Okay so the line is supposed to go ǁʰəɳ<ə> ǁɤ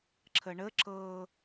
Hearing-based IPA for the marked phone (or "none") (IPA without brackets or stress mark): ə